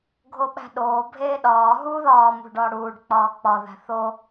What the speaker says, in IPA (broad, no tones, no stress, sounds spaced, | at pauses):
ɡʱ o ɓ æ̤ ɗ oː bʱ eː ɗ ɒː ɦ uː ð ɒː m ṳ ɖ ɒː ɽ uː ɖ k͡p ɒː k͡p ɒ ð æ̤ θ o